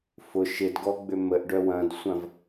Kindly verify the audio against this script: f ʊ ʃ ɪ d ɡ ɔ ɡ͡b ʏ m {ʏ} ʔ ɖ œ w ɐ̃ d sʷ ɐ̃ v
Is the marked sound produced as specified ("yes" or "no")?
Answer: no